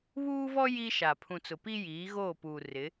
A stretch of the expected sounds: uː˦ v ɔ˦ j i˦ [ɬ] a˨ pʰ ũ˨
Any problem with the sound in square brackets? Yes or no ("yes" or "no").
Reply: yes